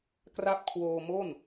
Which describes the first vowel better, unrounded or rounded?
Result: unrounded